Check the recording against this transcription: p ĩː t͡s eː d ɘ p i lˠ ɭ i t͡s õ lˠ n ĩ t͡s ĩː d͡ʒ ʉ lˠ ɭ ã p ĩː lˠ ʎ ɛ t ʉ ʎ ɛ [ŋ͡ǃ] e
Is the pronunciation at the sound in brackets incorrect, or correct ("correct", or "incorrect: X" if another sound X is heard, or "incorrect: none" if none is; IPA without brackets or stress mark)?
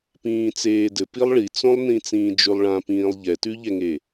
incorrect: ŋ